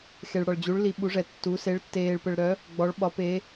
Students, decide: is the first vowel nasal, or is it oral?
oral